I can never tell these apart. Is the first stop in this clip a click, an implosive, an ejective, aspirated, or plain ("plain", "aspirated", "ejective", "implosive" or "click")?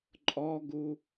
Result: click